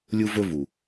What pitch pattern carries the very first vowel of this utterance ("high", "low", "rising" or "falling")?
high